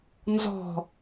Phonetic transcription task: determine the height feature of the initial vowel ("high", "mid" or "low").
mid